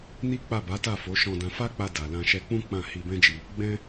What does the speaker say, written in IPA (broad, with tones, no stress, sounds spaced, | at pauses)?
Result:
n i˦ k͡p a˦˨ b a˨˦ t a˦˨ f o˨˦ ʃ ɔ̃˧ d ã˧ f a˦ k͡p a˧ d a˨ l ã˧ ʃ ɛ˧ k͡p ũ˦ k͡p ã˦˨ h i˧ b ɛ̃˦ d͡ʒ i˧ | ɡ͡b ɛ̃˦